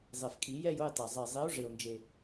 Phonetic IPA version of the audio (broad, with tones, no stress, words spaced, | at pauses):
zˤe˨˩fkʼi˧˩˧ jɛ˥˧jʊ˥˧jtˤe˨˩ zˤe˨˩zˤi˨˥o̯ ʐe˨˩o̯nd͡ʒe˨˩